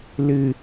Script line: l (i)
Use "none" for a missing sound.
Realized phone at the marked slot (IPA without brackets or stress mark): ɨ